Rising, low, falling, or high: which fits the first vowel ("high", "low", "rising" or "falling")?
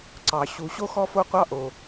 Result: low